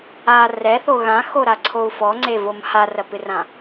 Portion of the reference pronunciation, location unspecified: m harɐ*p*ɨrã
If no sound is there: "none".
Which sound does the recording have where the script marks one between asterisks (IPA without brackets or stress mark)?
p